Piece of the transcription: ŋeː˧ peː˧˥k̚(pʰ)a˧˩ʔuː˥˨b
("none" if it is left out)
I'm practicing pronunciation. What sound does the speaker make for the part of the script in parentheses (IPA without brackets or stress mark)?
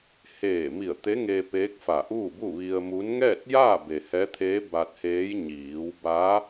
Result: f